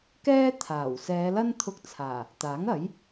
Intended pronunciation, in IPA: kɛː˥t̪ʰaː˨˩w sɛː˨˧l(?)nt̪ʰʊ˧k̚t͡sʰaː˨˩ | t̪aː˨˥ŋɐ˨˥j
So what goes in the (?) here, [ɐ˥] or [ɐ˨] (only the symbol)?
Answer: ɐ˥